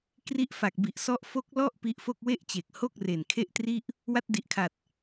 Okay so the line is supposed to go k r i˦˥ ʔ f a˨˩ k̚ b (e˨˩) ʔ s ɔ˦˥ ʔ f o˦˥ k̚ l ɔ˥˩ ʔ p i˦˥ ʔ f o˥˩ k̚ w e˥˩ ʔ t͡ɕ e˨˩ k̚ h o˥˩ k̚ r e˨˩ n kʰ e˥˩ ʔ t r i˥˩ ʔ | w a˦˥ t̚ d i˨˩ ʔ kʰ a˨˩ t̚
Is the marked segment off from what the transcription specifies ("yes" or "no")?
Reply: yes